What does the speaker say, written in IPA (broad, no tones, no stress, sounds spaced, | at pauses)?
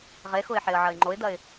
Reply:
ʁ e x ʊ ɪ̯ ħ e ə̯ ʕ ɐ ɪ̯ ŋ͡ǃ o ɪ̯ d̪ ɐ ɪ̯